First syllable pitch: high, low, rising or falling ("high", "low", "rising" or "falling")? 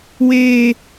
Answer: low